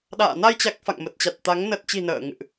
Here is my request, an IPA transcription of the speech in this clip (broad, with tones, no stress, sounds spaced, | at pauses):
ɗ a̰ː˧˨ n a˧ j t͡ɕ a˨˩ k̚ f a̰˧˨ ŋ m ə˨˩ t̚ t͡ɕ a˨˩ t̚ t̪ a˨˦ ŋ n ə˨˩ t̚ t͡ɕ i̤˨˩ n ə̰ː˧˨ ŋ ɨ̰˧˨ ʔ